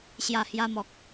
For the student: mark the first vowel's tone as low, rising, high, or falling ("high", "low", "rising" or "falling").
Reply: low